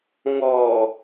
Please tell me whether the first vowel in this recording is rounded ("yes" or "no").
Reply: yes